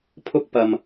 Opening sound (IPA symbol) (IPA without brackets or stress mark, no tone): pʰ